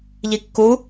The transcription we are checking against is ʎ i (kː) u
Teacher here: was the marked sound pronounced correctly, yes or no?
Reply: yes